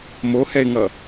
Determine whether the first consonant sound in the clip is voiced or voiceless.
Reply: voiced